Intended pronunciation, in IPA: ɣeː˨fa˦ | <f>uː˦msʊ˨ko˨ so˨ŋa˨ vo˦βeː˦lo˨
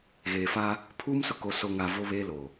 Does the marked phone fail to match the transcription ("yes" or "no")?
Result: yes